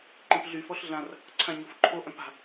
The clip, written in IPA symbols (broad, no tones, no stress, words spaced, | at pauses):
ǃĩpɮy fɔɬɮãr | ǀʰãɲofǃʰo ʔœ̃pa̤